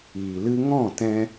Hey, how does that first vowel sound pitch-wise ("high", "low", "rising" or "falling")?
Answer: low